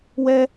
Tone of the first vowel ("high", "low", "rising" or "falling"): high